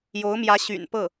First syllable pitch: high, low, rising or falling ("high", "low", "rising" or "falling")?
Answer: rising